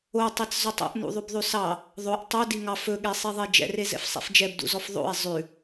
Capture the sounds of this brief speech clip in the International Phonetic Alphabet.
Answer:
o tˤ i t͡s z o tˤ o̰ ʔ n ṵ ðˤ ʉ b ðˤ ʉ s ɑ | ðˤ o ʔ tˤ ɵ d i ŋ ɑ f ɵ ɠ e sˤ i ðˤ e d͡ʒ ɛ̰ r e z ɛ̰ f sˤ ɛ̰ f d͡ʒ ɛ b d ṵ z ɔ f ðˤ o̰ e̯ zˤ ʉ

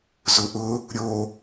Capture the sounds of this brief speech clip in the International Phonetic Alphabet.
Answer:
z ʊ ʔ ʊ | ɾʲ o

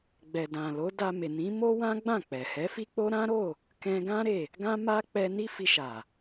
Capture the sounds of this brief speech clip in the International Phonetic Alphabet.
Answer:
ɡ͡b ɛ˨ d ã˨ l o˨˦ d a˧ m e˨ n ĩ˨˦ m o˦ w ã˦ ɡ͡b ã˦˨ k͡p ɛ˨ h ɛ˨˦ f i˦ k͡p o˦ ɾ ã˦ ɾ o˦˨ | k ɛ̃˧ ɡ ã˦ ɾ e˦˨ | ɡ ã˦ m a˦ k͡p ɛ˧ n i˦ f i˧ ʃ a˨

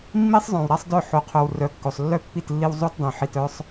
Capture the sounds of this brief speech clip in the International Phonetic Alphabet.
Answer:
mː i˦ sˤ zˤ œ̃˨ w ɾ a˦ sˤ d œ˦˨ ħ o˨ qʰ œ˨ w r œ˨˦ kː o˨ sˤ lː œ˦ pː i˦˨ t lː i˦ w zˤ o˦ t dˤ œ̃˨ ħ i˨ t œ˦ sˤ

